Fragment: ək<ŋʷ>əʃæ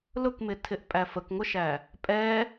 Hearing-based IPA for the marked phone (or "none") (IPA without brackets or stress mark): ŋʷ